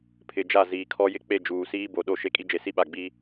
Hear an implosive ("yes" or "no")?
yes